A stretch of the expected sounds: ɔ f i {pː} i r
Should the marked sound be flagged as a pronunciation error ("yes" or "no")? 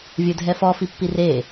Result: no